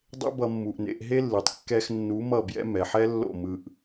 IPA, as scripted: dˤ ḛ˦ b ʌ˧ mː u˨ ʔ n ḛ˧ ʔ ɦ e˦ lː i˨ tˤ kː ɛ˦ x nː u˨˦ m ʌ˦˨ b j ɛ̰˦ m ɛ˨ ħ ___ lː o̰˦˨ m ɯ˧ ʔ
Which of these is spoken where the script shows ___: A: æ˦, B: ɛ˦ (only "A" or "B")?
B